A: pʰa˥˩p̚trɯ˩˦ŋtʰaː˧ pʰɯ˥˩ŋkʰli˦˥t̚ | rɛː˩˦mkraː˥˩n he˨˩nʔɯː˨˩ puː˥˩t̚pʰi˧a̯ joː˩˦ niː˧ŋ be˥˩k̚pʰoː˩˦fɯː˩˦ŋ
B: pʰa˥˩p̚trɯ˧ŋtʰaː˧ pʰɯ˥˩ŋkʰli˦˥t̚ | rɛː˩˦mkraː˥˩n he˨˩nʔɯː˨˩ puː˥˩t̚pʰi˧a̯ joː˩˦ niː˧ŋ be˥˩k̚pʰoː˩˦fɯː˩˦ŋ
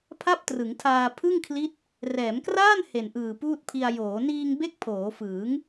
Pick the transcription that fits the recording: A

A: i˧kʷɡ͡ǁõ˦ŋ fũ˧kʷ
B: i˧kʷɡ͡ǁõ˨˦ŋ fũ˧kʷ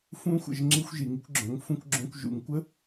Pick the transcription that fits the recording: B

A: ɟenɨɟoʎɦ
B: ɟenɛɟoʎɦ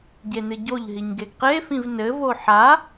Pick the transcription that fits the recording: A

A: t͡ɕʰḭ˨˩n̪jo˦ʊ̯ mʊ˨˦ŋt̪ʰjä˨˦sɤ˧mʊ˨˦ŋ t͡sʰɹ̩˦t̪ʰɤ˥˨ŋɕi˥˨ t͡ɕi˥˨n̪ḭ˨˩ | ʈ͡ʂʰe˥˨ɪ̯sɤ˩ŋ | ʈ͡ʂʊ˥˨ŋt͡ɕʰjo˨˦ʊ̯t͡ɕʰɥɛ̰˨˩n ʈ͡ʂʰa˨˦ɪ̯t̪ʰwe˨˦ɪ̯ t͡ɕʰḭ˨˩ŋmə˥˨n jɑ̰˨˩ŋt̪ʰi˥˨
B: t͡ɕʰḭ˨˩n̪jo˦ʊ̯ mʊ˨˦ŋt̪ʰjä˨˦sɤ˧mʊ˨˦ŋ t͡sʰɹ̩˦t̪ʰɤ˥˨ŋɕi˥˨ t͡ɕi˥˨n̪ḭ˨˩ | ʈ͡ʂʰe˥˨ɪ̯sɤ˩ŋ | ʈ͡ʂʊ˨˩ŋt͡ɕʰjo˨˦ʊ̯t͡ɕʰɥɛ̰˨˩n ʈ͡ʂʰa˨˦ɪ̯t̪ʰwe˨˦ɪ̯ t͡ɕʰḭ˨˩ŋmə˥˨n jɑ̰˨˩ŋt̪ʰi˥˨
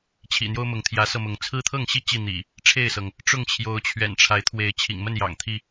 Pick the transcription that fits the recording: A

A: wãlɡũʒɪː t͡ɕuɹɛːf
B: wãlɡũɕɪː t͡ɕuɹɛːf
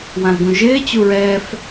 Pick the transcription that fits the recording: A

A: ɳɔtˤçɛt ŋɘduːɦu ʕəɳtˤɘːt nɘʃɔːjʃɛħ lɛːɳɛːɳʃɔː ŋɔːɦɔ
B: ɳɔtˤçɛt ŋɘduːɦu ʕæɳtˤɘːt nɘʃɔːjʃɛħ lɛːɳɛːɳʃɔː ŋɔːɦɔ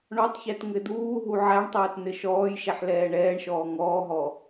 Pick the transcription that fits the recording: B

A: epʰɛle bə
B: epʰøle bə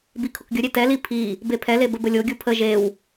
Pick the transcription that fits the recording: A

